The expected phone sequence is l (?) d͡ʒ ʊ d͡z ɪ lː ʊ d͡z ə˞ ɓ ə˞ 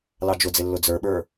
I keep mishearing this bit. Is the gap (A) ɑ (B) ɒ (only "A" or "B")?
A